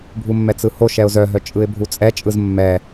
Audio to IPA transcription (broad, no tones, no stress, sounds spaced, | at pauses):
bʱ u mː ɛ t͡s ɯ h o ʃ ɛ ʊ̯ z œ ɦ œ t͡ʃʼ ɯ ɪ̯ bʱ u t͡sʼ ɛ t͡ʃʼ ɯ z mː ɛ